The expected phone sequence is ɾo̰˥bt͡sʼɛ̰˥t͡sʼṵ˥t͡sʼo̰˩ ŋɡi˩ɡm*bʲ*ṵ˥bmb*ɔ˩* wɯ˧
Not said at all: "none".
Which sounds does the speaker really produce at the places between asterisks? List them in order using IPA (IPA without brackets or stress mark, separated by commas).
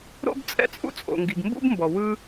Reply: b, ɔ˩